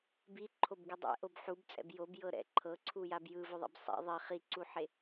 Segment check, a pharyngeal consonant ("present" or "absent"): present